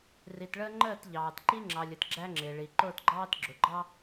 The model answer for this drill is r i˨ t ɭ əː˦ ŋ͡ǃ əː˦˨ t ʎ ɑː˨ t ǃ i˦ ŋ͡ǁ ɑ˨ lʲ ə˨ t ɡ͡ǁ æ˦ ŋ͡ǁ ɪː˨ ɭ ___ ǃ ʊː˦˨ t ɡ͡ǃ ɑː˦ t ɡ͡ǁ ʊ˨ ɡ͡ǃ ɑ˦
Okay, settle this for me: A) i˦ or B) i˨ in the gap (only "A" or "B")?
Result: B